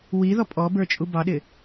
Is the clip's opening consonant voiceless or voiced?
voiced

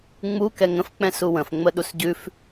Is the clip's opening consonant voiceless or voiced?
voiced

